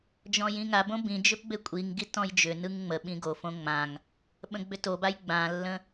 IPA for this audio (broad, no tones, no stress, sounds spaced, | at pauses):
d͡ʒ ɔ̃ j ĩ ŋ a b õ b ĩ d͡ʒ ʏ p b e kʷʼ i ŋ ɡ i t ɔ̃ j d͡ʒ ʏ n ɯ ŋ ŋ͡m ə ɓ ĩ ɡ o f õ ŋ͡m ã ŋ | ɓ ə̃ ɡ͡b ʏ t o b a j ɡ͡b ã lː ə̃